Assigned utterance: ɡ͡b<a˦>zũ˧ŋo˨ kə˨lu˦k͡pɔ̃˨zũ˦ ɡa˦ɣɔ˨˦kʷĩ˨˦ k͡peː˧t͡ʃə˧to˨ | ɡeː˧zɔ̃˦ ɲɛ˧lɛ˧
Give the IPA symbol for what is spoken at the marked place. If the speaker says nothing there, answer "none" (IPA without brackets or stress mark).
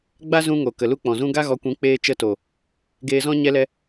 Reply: a˦